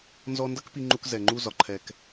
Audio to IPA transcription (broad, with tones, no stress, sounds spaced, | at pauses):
n z ɔ˧ n d ʌ˦ k p i˧ ŋ͡ǃ u˧ k z ɛ˨ ŋ͡ǃ u˧ z ɒ˨ ǃʰ ɛ˨ k